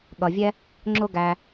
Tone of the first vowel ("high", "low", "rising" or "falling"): low